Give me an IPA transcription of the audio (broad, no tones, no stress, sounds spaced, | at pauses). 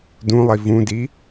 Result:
d ũ lˠ i v ũ d i